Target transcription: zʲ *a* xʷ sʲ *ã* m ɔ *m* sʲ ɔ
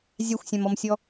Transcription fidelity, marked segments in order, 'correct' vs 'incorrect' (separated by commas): correct, correct, correct